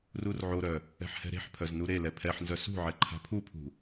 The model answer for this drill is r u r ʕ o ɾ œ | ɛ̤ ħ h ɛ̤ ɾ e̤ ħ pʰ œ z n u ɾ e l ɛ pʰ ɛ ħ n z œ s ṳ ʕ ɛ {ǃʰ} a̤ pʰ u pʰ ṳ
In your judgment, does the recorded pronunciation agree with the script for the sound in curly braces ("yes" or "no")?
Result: yes